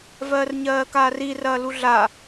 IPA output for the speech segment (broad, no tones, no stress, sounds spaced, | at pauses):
v ɜː r ɲ ɜː k aː r i r ɐː l u ɮ a